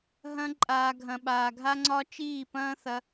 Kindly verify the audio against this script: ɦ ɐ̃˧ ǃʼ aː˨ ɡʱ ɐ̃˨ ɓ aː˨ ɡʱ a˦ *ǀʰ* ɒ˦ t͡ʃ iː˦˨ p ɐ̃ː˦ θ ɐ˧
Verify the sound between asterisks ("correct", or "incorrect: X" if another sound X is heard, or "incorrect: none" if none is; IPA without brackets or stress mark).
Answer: incorrect: ŋ͡ǀ